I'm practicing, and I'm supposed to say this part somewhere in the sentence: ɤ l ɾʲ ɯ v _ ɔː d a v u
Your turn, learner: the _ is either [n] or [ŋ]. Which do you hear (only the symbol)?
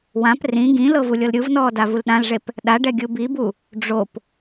n